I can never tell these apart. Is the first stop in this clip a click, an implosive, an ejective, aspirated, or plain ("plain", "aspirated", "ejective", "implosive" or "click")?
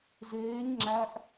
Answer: click